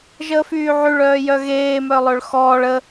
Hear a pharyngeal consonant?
yes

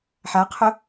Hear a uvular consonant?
yes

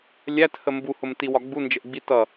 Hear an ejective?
no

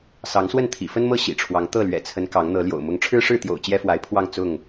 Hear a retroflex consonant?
yes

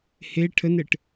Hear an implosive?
no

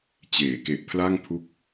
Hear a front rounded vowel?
no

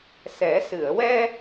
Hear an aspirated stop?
no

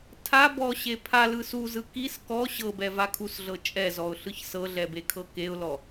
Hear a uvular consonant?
no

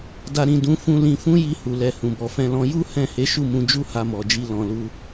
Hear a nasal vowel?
yes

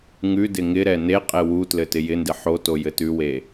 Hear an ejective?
yes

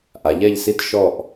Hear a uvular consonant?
no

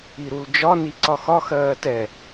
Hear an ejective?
no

